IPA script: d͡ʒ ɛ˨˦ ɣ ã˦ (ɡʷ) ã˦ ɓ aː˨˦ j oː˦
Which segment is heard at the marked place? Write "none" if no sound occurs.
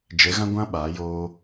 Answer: ɡʷ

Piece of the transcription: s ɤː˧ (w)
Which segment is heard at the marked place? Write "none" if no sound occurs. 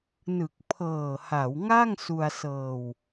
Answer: w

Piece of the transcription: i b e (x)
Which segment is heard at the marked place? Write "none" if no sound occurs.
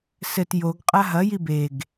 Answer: ɡ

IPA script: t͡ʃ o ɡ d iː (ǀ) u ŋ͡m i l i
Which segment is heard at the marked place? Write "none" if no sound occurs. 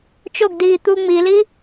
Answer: t̪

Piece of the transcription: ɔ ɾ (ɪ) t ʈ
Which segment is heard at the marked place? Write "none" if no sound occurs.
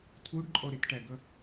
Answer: ɪ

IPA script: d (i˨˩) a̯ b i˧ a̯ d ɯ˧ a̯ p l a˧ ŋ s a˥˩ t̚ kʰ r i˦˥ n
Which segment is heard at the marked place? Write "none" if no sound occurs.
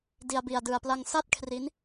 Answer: i˧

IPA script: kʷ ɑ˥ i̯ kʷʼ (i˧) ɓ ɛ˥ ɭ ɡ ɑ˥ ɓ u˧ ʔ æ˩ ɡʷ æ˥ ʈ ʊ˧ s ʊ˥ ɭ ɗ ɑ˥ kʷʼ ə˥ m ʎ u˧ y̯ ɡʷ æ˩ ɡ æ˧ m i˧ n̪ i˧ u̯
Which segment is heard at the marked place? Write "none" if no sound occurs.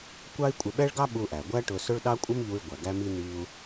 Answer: ɪ˧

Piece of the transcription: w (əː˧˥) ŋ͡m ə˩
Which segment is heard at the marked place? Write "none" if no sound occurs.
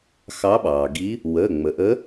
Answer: əː˩˧˩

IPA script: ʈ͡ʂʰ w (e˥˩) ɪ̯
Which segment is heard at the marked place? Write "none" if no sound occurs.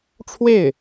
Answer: e˥˩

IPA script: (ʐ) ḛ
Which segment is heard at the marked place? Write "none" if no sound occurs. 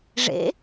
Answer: ʐ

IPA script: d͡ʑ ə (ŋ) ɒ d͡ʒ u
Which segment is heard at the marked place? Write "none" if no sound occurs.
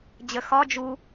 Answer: x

